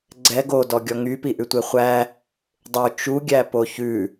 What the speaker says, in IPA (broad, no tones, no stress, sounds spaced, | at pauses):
ɡ͡ǀ ɛ ɡ o d ɔ ɡʲ ɔ ŋ y p i ʔ ʉ tʷ e χʷ æ | dˤ ʉ t͡ʃ u ɡʲ æ p o ç ʉ